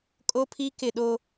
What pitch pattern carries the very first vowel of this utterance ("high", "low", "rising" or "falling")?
high